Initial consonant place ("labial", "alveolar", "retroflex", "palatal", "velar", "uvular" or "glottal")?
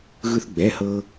velar